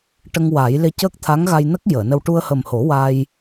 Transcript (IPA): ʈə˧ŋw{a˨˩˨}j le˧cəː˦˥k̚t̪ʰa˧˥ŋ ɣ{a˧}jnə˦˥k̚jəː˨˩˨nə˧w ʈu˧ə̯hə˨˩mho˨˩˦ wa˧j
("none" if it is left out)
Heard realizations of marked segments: a˨˩˦, a˧

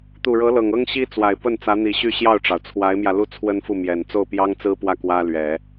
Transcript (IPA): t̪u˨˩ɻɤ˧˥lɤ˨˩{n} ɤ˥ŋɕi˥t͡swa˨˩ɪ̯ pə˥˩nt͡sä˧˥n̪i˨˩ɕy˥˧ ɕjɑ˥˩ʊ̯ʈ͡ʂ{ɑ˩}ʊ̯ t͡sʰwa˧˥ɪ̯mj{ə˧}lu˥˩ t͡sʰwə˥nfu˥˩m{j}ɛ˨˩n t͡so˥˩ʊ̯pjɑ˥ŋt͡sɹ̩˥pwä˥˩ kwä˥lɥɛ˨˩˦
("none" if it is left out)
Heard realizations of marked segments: ŋ, ɑ˩, ä˧, j

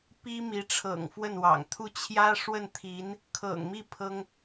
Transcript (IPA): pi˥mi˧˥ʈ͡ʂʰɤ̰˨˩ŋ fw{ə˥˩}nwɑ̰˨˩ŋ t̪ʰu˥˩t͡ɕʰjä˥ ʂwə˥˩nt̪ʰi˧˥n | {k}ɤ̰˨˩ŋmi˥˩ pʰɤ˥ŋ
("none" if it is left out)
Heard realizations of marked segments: ə˥˩, kʰ

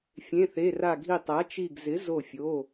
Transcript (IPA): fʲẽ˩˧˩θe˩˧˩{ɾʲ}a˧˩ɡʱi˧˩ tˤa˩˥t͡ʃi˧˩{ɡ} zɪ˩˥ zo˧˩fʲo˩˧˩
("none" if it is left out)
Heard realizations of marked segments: r, ɡ

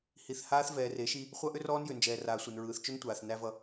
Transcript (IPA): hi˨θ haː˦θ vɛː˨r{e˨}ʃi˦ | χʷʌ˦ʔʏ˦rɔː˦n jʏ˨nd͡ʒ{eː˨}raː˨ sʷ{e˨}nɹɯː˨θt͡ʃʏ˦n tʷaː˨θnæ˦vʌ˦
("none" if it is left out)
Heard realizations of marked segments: e˨˦, ɛː˨, e˨

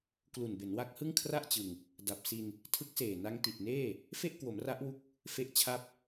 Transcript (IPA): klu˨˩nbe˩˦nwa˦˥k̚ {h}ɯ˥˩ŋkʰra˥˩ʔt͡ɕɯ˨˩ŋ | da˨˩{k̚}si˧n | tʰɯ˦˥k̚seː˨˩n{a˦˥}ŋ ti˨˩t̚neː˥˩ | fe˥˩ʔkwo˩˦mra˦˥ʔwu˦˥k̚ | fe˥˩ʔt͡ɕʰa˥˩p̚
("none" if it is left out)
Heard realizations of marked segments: h, p̚, a˦˥

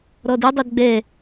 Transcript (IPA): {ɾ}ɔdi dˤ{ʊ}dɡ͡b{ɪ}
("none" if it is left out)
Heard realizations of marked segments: ɾ, ʊ, ɛ

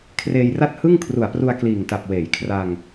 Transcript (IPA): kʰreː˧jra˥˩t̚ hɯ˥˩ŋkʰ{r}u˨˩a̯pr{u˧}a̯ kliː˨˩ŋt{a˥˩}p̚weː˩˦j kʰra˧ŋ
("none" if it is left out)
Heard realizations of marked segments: r, u˧, a˨˩

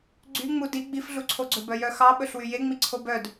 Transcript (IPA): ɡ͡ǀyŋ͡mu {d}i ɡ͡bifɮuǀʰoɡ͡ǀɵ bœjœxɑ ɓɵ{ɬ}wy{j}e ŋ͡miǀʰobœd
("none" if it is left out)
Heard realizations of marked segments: d, ɬ, j

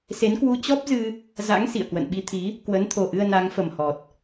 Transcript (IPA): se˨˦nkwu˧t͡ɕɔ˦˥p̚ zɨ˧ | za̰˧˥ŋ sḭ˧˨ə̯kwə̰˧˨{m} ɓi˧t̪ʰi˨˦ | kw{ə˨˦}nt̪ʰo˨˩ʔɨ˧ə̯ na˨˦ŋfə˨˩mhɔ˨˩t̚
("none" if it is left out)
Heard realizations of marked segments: n, ə˨˦

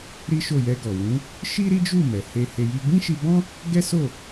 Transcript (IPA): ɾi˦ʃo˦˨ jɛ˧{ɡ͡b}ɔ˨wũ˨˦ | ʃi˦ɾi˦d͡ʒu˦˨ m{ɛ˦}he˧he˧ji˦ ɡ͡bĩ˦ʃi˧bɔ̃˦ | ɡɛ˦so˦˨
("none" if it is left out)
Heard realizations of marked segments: ɡ, ɛ˨

